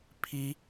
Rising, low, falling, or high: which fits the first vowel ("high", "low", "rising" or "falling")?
rising